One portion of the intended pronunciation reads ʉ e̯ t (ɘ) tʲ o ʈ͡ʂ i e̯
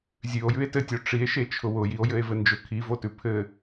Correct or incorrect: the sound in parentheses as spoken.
correct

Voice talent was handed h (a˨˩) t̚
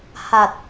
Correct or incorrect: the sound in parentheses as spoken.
correct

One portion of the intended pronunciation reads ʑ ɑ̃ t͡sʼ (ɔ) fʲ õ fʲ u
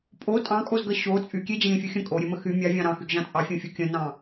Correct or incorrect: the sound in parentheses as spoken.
incorrect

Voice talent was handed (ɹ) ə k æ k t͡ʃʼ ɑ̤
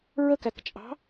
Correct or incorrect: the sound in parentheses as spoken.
correct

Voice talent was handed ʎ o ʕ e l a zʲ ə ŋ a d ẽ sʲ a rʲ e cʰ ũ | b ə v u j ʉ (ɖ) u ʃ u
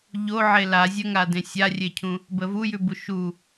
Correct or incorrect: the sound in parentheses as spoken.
incorrect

